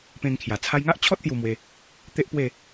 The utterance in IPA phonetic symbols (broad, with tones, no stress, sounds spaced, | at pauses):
p ẽ˧ ŋ kʰ j a˨˩ t͡sʰ a˧ j ŋ a˦ ʔ t͡ɕʰ ɔ˦ t̚ t̪ j u˧ m w e˧ | t̪ e˦ ʔ p w e˥˧